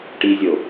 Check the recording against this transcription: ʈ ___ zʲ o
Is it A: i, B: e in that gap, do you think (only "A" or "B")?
A